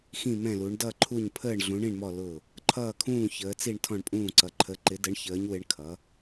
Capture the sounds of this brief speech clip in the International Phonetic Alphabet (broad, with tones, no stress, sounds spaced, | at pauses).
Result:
x ĩ˧˩ m ɛ̃˧˩ l u˩˧ ɳ d ʌ˧˩ ǃʰ u˧˩ ɲ pʰ əː˧˩ ɳ ɮ ũ˩˧ ɳ ĩ˧˩ ɳ m ɔ˧˩ l ʊ˧˩ | ǃʰ ʌː˧˩ kʰ ũː˧˩ ç əː˩˧ t͡s i˧˩ ɳ tʰ ɔ̃˧˩ ɳ pʼ ũː˧˩ ǀ ʌ˩˧ ǃʰ ə˩˧ ǃ ɪ˩˧ d ə˩˧ ɳ ç əː˩˧ ɲ w ɪ˩˧ ɳ kʰ ʌ˩˧